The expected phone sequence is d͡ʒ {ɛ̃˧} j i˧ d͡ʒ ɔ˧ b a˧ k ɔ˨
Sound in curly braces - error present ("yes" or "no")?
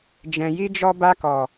yes